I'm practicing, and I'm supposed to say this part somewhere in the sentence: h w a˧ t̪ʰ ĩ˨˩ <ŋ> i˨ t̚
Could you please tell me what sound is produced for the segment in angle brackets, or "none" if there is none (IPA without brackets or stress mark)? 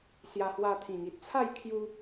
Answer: ŋ